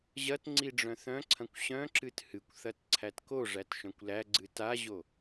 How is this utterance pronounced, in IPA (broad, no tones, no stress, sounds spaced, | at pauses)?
ʑ ɐ t ŋ͡ǀ i ɖ͡ʐ œ̃ θ œ̃ ǀʰ ɐ̃ kʷ ɕ œ̃ ǁ ɨ t h ɨ kʷ θ ɐ t ǀʰ æ t k o ʐ æ t ʃ œ̃ kʷ l æ ɡ͡ǀ ɨ t a ʑ o